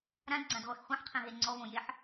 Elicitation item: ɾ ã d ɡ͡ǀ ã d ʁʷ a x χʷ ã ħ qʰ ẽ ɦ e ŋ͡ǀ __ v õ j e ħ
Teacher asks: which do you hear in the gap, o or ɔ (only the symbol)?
ɔ